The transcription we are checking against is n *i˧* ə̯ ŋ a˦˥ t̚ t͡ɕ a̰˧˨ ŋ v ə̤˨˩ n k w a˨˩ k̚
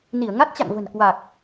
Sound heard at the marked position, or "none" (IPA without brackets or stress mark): i˧˩